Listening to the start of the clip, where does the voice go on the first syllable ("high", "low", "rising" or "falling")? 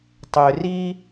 low